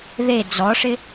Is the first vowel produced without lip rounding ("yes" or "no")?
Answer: yes